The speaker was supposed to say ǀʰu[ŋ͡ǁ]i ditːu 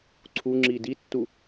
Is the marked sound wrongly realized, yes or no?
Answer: no